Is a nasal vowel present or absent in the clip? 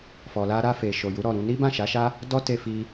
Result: present